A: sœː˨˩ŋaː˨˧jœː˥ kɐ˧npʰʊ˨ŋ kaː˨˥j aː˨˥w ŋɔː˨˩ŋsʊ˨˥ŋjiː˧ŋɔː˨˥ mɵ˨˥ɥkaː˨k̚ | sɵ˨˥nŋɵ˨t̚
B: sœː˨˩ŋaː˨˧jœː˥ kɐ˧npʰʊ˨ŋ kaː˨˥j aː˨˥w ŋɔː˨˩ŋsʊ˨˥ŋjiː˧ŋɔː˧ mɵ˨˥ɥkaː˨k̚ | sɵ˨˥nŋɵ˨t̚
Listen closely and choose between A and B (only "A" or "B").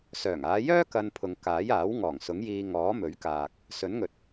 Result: A